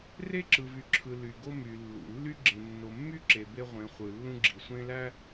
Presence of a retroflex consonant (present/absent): absent